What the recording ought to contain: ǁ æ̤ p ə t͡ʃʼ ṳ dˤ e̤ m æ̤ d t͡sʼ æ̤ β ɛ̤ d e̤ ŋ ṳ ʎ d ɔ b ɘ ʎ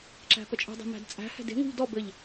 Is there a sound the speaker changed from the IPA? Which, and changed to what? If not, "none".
β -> h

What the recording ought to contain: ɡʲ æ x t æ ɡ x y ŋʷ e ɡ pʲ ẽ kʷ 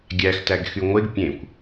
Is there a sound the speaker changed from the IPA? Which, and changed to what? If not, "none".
none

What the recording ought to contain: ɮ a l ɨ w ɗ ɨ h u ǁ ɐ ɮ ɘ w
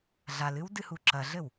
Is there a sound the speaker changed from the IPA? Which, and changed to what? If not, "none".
ɗ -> d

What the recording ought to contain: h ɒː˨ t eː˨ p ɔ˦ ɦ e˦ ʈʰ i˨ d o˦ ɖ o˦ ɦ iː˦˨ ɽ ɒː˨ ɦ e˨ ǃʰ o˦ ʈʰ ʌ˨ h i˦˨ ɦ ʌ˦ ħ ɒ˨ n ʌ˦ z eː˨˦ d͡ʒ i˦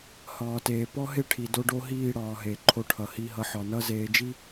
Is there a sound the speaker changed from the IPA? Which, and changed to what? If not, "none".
none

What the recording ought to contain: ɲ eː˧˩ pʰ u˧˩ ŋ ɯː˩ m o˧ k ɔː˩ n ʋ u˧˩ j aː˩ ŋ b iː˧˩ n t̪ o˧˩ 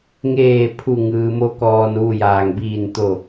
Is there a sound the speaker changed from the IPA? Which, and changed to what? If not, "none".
ɲ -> ŋ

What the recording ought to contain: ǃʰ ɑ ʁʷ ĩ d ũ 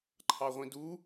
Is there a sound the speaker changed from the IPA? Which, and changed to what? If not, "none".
ũ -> u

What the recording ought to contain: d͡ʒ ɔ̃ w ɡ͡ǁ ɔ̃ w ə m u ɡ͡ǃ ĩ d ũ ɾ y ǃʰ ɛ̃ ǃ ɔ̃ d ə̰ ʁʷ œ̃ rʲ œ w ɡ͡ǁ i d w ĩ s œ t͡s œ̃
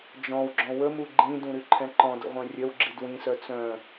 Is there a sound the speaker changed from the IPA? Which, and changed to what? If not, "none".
none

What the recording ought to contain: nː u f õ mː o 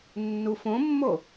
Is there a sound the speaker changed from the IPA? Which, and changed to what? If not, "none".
none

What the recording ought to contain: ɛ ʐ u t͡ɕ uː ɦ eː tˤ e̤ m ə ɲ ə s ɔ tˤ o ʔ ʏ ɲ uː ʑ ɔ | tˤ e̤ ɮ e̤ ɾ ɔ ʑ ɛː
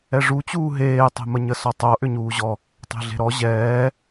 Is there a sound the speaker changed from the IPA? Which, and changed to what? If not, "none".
none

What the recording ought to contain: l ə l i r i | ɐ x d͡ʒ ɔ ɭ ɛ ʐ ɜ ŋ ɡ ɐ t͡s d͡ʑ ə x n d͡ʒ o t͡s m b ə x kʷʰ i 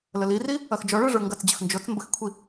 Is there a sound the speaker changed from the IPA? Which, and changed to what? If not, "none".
ɜ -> ə˞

